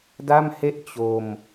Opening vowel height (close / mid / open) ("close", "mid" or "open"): open